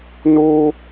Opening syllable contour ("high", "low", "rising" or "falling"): high